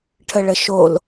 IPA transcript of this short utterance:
ʈʰəɭəʃol

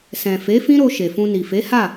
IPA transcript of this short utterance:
sɛ̃˨ fe˨˦fĩ˦ɾo˧ ʃe˨fũ˧ni˨ fe˨˦ha˦˨

